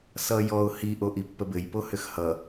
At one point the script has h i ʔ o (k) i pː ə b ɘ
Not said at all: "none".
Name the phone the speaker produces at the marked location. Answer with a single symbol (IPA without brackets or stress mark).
ʔ